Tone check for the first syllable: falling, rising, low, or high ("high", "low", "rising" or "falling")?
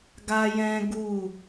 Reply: high